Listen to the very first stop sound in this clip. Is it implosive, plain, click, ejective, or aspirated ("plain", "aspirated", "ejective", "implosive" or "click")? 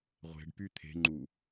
plain